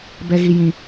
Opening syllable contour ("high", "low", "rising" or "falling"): high